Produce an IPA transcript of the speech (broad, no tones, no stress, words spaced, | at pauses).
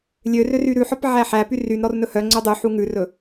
lʲørør yɾʉħɔp ʕæħæpy ryn ɾɔrnɵhœŋ͡ǀø dˤy ħuŋʉrɵ